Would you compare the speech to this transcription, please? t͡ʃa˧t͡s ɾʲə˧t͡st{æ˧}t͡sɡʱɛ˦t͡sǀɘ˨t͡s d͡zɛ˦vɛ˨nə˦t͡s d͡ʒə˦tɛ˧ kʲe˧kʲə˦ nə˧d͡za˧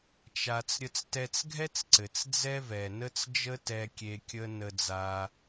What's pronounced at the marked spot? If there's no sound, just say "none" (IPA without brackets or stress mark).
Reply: ɛ˧